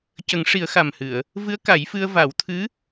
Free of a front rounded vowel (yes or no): yes